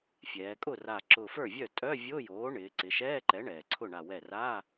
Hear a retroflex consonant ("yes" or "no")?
yes